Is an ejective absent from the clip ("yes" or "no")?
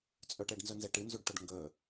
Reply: no